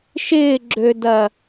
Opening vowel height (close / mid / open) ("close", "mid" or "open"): close